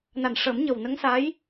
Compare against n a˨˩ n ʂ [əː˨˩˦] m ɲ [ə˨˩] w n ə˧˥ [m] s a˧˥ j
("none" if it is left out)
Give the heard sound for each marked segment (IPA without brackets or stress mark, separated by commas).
əː˨˩˦, ə˨˩, ŋ